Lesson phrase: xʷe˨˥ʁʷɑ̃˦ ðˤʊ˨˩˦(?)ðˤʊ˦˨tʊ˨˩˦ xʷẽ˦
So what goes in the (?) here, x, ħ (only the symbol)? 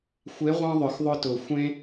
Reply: x